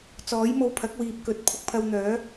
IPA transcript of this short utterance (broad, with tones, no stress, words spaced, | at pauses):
t͡sɔː˨˥jmo˧wpʰɐ˨˥k̚wiː˨p̚ kɵ˨˥t̚ pʰʊ˧k̚pʰɐ˧wn̪œː˨˥